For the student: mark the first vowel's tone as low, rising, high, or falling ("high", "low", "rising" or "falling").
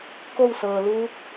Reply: falling